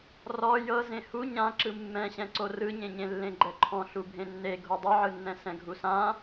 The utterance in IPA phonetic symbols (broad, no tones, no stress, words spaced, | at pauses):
rɔ jɤ zẽhu ɲã ǁɯmːɛ̃ɕɛ̃ǀo rɯɲẽɲẽ lːẽɡ͡ǃɛǃʰɔ̃ ɬubʱẽnːe ɡʱodˤɯʕɯnːɛ̃ sɛ̃ɡʱusã